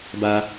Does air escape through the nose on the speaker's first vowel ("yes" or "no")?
no